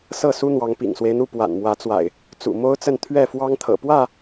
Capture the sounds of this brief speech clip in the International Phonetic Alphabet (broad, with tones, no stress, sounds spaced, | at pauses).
s ɤ˥˨ s u˦ n̪ w ɑ˨˦ ŋ p ḭ˨˩ ŋ s w e˦ ɪ̯ n̪ u˥˨ p w a̰˨˩ n m w ä˨˦ t͡s w a̰˨˩ ɪ̯ | t͡s ṵ˨˩ m o˦ ʊ̯ t͡s ə˥˨ n t̪ʰ ɥ ɛ˥˨ f w ɑ˦ ŋ t̪ʰ ɤ̰˨˩ p w ä˥˨